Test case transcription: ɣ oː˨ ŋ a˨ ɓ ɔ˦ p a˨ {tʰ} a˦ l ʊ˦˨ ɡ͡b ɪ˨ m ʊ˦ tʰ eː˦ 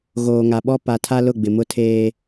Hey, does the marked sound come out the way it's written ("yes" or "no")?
yes